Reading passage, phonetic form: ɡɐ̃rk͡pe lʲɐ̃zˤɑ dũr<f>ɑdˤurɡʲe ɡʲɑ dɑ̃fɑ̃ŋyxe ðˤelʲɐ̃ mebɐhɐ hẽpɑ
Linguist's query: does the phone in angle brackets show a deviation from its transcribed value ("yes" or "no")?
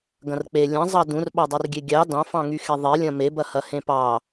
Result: yes